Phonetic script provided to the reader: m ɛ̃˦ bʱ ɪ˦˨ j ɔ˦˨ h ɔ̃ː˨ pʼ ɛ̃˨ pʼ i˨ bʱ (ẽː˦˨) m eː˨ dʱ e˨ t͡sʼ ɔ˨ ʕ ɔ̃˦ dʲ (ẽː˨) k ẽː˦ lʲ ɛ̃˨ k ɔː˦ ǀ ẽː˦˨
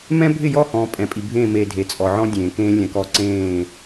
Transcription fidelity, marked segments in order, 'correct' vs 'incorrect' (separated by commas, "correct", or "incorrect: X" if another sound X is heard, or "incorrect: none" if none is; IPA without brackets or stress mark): correct, correct